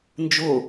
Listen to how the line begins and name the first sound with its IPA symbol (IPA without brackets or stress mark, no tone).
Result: n